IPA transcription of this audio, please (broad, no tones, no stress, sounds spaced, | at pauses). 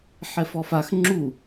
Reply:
ħ ɛ f ɔ f a x ŋ͡ǁ u